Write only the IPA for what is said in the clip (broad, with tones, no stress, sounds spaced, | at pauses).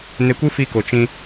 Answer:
n e˧ kʷ ɨ˦ f i˧ k o˨ t͡ʃ ĩ˧